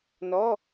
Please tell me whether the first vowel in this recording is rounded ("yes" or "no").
yes